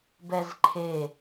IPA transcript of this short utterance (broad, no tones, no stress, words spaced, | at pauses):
bɛzǃʰe